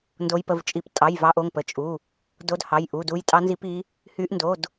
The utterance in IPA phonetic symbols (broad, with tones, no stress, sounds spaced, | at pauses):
n d o˨˦ j p ə˩˧˩ v t͡ʃʼ i˨˦ p tʼ ɑ˩˧˩ j v ɑ˨˦ ʔ o˩˧˩ ŋ p ə˩˧˩ t͡ʃʼ u˩˧˩ | d o˨˦ d h ɑ˩˧˩ j ʔ u˩˧˩ d u˨˦ j tʼ ɑ˨˦ n z i˨˦ p i˨˦ | h y˨˦ ʔ n d o˩˧˩ d